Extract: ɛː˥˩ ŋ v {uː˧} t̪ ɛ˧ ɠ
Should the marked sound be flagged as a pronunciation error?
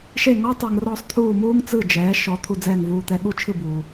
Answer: no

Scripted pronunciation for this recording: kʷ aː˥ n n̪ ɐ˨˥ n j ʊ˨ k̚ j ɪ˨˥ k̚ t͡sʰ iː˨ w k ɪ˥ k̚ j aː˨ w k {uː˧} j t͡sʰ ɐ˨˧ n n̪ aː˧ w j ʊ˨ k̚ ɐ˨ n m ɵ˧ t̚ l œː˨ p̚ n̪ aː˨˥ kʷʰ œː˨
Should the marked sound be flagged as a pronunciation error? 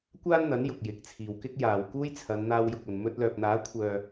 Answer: yes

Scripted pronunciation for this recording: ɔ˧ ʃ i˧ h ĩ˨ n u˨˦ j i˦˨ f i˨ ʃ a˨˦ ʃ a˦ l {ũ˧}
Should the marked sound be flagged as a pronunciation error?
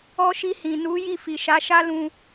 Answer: no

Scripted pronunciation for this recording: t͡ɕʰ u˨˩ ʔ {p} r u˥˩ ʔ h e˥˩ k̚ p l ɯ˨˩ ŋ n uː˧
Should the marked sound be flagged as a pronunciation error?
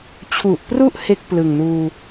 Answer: no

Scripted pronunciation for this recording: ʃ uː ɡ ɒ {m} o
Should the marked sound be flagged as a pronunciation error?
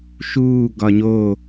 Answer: yes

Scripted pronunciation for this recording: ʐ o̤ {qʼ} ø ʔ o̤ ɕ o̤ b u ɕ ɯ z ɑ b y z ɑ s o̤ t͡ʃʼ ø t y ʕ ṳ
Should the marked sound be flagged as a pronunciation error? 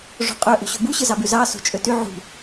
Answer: no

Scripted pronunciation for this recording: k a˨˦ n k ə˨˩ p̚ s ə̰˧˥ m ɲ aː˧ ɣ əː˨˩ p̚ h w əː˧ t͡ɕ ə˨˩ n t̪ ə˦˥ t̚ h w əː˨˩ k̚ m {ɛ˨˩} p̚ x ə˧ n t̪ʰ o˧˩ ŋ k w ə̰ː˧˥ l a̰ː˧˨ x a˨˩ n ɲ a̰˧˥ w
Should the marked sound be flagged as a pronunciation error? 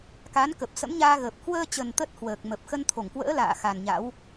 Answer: yes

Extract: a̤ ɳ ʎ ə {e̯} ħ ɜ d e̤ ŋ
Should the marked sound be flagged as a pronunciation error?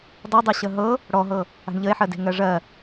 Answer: no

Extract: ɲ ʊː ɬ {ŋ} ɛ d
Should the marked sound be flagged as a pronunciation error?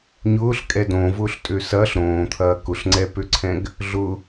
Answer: yes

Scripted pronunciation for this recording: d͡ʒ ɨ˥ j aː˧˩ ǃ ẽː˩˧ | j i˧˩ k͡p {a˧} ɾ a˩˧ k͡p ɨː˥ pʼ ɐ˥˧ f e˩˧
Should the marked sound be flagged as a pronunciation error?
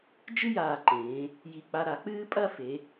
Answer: no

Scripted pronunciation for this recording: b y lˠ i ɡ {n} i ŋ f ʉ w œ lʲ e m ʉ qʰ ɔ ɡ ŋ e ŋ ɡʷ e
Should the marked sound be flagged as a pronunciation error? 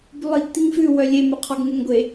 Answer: yes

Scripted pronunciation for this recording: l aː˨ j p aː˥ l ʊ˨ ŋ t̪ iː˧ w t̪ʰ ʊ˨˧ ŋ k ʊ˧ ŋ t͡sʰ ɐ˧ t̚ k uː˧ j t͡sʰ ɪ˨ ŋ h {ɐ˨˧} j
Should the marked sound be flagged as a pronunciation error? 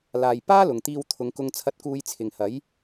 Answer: yes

